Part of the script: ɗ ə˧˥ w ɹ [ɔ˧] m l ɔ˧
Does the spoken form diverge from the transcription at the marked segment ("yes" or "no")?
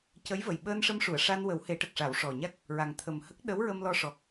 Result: yes